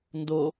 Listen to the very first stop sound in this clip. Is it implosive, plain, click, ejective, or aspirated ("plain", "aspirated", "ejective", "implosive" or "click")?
plain